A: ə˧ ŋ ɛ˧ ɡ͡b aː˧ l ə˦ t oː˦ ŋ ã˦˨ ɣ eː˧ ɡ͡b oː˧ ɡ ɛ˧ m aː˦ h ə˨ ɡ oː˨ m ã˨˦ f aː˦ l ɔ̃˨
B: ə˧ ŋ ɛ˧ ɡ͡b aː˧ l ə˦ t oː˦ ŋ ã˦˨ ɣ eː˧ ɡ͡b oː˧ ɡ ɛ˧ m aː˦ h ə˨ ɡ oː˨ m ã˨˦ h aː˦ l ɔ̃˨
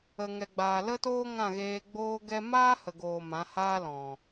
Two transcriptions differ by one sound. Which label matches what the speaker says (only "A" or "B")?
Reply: B